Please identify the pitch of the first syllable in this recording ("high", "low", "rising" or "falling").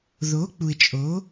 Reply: rising